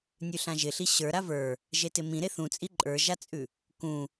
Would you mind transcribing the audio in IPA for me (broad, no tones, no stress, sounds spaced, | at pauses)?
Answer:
nʲ ʉ ɬ ã ʒ ɪ ɬ i ɕ ə˞ ɾ a v ə˞ | ʒ e t ɪ m ĩ ɾ e θ ũ t͡sʼ i ǃʼ ə˞ ʒ a t͡sʼ ʉ | k ũ